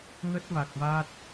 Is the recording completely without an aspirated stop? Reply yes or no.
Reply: yes